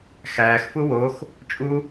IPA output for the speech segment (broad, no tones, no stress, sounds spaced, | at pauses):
x æː x f u w o x | t͡ʃʼ u